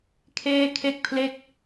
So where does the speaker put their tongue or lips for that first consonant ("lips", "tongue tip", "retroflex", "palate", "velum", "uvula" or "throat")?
velum